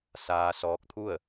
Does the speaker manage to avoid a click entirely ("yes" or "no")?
yes